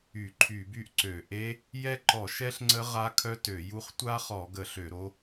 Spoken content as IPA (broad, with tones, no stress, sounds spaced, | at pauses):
y˧˩˧ ǃʰ y˧˩˧ b y˦˥ ʔ ǀ ø˧˩˧ ʔ e˦˥ | j ɛ˦˥ ǃ ɔ˧˩˧ ʃ ɛ˦˥ ɬ ŋ͡ǀ ə˦˥ ʁ a˦˥ kʰ œ˦˥ t ø˧˩˧ j u˦˥ χ tʷ a˦˥ χ ɔ˧˩˧ ɡ ə˧˩˧ ɬ ø˧˩˧ ɾ o˦˥